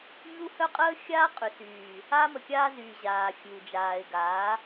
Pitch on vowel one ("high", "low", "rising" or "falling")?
high